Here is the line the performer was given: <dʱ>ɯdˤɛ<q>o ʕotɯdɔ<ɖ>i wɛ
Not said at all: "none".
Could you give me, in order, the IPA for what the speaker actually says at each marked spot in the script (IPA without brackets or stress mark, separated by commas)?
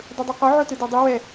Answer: dˤ, q, dˤ